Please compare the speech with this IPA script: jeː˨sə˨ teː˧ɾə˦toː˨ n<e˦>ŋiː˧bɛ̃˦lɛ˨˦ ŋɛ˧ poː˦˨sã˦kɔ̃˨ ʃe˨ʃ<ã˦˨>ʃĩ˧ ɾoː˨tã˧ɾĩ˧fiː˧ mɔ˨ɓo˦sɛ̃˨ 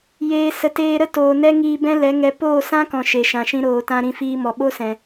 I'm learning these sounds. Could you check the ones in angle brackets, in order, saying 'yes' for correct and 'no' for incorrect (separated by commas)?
no, no